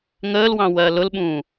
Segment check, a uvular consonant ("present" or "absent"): absent